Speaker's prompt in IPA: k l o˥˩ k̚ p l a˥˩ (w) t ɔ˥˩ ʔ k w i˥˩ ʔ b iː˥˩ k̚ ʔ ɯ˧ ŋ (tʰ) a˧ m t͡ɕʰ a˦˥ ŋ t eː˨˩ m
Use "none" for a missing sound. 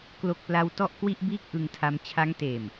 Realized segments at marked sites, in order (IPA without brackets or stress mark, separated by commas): w, tʰ